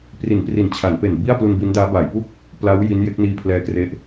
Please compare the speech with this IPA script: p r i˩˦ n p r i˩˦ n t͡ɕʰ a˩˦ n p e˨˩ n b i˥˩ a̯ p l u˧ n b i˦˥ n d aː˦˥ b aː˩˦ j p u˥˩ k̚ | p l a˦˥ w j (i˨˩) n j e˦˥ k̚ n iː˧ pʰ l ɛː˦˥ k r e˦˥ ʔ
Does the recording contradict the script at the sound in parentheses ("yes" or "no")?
yes